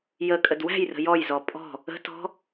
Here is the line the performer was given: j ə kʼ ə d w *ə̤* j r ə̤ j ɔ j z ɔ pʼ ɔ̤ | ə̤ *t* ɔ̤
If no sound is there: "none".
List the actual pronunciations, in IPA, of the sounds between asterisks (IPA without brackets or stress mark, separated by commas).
æ̤, t